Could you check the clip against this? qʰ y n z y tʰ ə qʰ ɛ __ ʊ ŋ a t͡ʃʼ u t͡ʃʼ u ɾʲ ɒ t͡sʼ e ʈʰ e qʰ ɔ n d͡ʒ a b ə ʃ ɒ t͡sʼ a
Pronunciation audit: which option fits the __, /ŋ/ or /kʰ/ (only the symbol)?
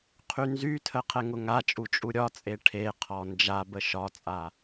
ŋ